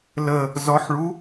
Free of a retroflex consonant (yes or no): no